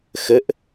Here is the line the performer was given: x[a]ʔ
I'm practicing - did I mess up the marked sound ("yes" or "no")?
yes